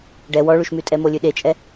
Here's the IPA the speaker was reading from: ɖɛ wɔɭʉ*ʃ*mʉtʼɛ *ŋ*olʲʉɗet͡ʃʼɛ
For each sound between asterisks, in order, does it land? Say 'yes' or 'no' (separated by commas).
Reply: yes, no